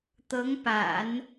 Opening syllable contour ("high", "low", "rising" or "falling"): rising